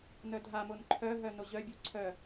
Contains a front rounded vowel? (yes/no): yes